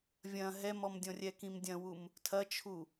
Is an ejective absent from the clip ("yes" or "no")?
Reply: yes